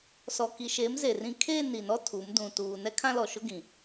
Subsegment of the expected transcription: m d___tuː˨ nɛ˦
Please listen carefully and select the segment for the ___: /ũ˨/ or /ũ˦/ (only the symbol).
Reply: ũ˨